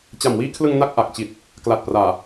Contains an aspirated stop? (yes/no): yes